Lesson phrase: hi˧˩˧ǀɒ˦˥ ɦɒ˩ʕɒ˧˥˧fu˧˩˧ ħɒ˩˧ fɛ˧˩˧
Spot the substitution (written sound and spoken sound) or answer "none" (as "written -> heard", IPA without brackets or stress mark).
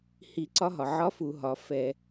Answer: ħ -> ɦ